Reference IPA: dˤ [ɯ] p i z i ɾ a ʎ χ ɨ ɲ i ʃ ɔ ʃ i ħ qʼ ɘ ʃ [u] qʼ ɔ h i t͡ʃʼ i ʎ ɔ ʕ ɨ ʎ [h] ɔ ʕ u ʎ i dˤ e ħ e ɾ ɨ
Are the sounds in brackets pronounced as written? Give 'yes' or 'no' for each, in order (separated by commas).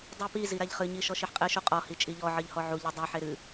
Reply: no, yes, yes